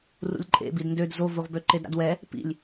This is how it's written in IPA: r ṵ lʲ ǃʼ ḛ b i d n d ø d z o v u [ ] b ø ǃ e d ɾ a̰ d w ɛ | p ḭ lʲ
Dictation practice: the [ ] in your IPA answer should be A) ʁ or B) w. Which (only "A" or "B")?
A